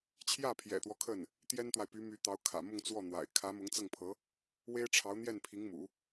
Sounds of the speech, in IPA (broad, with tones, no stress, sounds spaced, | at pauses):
t͡ɕʰ j ä˥˩ pʰ j ɛ̰˨˩ t̪ w ɔ˦ kʰ ə˥˩ n | t̪ j ɛ˥ n t̪ w a˨ ɪ̯ p y˧˥ m y˧˥ t̪ ɑ˧˥ ʊ̯ kʰ ä̰˨˩ m ʊ˥˧ ŋ t͡s w ɔ˥˩ n̪ w a̰˨˩ ɪ̯ kʰ ä˧˥ m ʊ˧˥ ŋ t͡s ɤ˥˩ ŋ pʰ ɤ˧˥ | w e˥ ɪ̯ ʈ͡ʂʰ ɑ˧˥ ʊ̯ n̪ j ɛ˥˩ n pʰ i˧˥ ŋ m ṵ˨˩˦